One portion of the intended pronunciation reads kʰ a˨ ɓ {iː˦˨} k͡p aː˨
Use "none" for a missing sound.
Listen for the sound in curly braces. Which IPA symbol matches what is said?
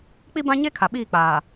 iː˦˨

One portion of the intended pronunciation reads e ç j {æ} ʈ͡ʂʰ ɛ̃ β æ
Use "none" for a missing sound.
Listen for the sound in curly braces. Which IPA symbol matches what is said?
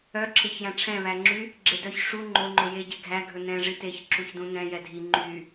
æ̃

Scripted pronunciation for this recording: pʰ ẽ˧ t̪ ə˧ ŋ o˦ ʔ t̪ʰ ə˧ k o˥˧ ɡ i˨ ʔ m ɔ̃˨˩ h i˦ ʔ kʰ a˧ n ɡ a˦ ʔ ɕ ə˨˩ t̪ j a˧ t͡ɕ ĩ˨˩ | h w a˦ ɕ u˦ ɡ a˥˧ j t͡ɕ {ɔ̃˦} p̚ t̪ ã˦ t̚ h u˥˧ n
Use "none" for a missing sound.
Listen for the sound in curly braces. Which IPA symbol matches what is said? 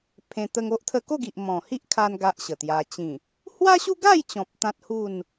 ɔ̃˨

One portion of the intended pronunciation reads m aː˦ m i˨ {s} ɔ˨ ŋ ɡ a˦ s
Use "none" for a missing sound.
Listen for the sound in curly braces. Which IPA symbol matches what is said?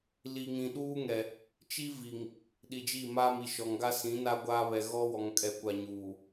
ʃ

